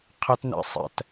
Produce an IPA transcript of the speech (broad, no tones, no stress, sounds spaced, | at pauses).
qʰ ɛ t n ɛ̰ sˤ ɛ̰ t